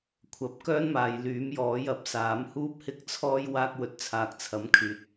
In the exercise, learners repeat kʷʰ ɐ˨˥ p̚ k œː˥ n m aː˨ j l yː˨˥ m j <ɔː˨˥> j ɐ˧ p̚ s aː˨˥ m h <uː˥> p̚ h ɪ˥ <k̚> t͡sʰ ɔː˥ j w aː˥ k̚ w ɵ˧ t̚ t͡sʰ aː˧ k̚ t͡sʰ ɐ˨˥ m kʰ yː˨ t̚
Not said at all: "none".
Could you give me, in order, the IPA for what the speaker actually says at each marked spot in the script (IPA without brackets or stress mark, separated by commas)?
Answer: ɔː˨˥, uː˥, k̚